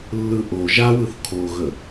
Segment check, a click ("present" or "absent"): absent